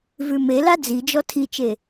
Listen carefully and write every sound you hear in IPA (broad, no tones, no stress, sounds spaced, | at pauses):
v ʉ m e l a d͡z i d͡ʒ ɔ tʰ i t͡ʃ e